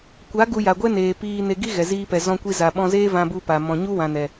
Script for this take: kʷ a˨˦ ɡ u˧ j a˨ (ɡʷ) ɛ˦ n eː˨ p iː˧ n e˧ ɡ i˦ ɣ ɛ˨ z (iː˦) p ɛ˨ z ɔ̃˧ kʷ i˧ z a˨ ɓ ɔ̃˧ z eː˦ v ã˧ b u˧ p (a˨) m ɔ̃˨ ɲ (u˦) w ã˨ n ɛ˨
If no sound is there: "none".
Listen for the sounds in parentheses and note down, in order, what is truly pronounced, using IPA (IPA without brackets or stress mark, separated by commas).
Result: ɡʷ, iː˧, a˨, u˦